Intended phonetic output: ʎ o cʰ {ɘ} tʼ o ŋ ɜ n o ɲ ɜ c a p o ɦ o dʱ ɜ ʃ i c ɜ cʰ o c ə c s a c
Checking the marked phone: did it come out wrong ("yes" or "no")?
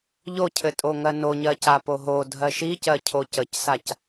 no